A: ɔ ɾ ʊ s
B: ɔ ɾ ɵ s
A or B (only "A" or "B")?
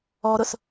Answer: A